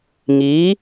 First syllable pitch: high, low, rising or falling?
rising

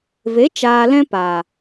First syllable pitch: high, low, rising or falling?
rising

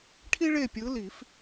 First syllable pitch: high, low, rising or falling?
high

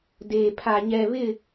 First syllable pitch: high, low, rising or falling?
low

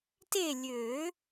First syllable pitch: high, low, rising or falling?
falling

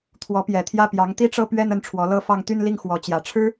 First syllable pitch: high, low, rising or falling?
rising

